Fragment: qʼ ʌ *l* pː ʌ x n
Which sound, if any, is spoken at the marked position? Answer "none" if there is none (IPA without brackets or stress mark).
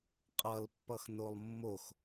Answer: l